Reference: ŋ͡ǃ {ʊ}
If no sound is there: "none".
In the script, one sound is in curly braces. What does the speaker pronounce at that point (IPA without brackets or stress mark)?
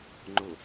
ʊ